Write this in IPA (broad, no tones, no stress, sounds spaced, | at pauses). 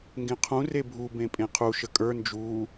ŋ ɡ ẽ qʰ ũ r e bʱ u b ẽ pʼ ẽ qʰ u ʃ ə kʼ ə˞ n d͡ʒ uː